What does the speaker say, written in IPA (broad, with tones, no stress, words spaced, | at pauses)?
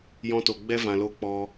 jɔ̃˧to˨ɡ͡bɛ˦ vã˨lo˧ k͡pɔ˦